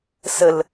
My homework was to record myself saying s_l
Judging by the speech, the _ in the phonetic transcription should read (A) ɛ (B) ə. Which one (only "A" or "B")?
B